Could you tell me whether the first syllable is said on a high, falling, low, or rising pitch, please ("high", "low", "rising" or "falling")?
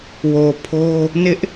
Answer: low